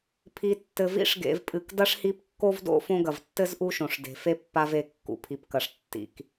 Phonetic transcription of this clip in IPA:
pʰ i˨ tː ɘ˨ v ḭ˦ ʂ ɡ ḛ˨ v pʼ ɨ˩ k d ɐ˥ ʂ h i˦ p kː o˥ v d o̰˥ f õ˦ ɡ ɐ˩ v tː ɘ˥ z ʔ u˦ ʃ õ˩ ʂ d e̤˩ f e˥ pː a˦ v e˨ kː ṵ˨ pʰ i˨ p k ɐ˨ ʂ tː ḭ˨ k

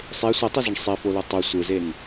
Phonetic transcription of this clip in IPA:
sˤ e sʷ i tˤ u z ɯ ɳ sˤ i f o l ɯ tˤ o sʷ ɯ z e n

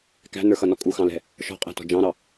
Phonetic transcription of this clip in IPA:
k æ̤ n ə˞ x ʌ n ɔ kʼ u x ɑ̃ l ɛ̤ | ʃ ɔ̤ qʼ æ̤ t ɔ̤ d͡ʒ ɑ̃ ɾ ɑ

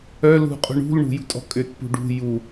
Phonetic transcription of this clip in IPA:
œ l ṳ qʼ ṳ ɳ ṳ l ɳ ṳ j ṳ tʼ ɔ̤ kʼ ʏ t p ṳ ɖ ṳ j u

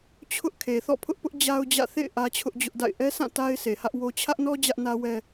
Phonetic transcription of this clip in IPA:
t͡ɕʰ ʊ˦ ʔ kʰ e˨ θ ɔ̰˦˨ pʰ ʊ˦ ʔ p ʊ˦ ʔ d͡ʑ a˦ ʊ̯ d͡ʑ ä̰˦˨ θ ḛ˦˨ ɪ̯ ʔ ä˦ t͡ɕʰ ʊ˦ ʔ d͡ʑ ʊ˦ ʔ d a̰˦˨ ɪ̯ ʔ ɛ˦ sʰ ã˦˨ t a˦ ɪ̯ sʰ e˨ h ä˦ ʔ w o˦ t͡ɕʰ ä˦ ʔ n ɔ˦ d͡ʑ ä˦ ʔ n ä˦ w ɛ˦

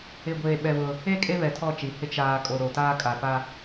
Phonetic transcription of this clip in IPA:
ɪ˨ ɡʷ eː˨ ɓ ɛ˨ β ʊ˦ | e˦˨ kʼ e˦ β ɛ˨ tʰ ɔ˦˨ t͡ʃ i˨ h ɪ˦ t͡ʃ aː˦ kʼ o˨ ɾ o˨ t aː˦ kʼ a˨ p a˦

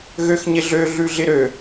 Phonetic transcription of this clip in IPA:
ɣ ø x ɲ ɪ ɮ ø ɮ ʉ ɮ ɪ ɾ ø

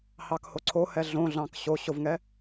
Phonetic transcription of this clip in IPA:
h ɑ k h o ǀʰ o h ɛ ɮ õ ɮ ɑ̃ k ɕ o ɕ o v ŋ ɛ

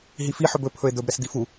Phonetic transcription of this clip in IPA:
ɦ i f i ħ ɵ b ɵ pʰ ɵ e̯ d̪ ɵ b ɾ ɛ s d̪ i f u

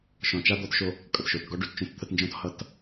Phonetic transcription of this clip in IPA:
ʃ ɔ̃˨ t͡ʃ a˦ d̪ ɔ˦ t ʃ o˦ | kʼ ʌ˨ t ʃ o˨ t ɡ ɔ˦ ɖ ʉ˨ t t͡ʃ õ˦ t t̪ʰ ə˦ t n d͡ʒ ɔ̃˦ t h ʌ˨ t

